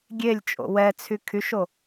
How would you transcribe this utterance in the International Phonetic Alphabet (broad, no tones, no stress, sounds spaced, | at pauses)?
ɡʲ e lʲ t͡ʃʼ o̰ w ɛ t͡sʰ y kʰ y ʃ o